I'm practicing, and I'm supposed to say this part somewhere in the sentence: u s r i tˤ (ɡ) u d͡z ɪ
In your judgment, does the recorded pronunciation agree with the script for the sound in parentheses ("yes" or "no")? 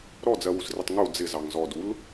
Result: no